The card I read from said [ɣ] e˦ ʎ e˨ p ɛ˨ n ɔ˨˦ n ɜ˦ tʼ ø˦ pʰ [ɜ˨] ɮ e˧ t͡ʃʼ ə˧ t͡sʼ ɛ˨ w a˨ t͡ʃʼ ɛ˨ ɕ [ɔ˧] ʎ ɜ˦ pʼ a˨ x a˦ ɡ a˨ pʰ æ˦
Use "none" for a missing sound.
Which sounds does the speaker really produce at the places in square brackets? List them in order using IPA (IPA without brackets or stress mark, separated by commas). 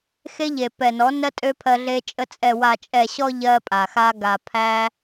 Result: x, ɜ˧, ɔ˧